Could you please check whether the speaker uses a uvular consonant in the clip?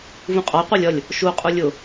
yes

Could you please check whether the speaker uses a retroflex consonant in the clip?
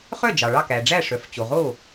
yes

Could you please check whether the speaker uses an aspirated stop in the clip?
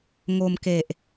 no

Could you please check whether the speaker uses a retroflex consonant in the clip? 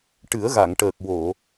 yes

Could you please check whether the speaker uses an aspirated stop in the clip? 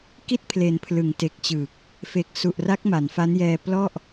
yes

